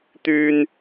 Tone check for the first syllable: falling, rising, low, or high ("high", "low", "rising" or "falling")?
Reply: high